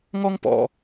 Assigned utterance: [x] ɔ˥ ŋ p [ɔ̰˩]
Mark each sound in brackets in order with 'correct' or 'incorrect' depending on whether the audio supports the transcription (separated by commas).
incorrect, correct